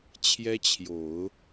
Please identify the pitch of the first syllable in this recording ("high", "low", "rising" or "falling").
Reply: high